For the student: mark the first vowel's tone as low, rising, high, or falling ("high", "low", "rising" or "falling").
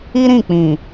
high